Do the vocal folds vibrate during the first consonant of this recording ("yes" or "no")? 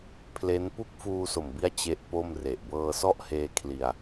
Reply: no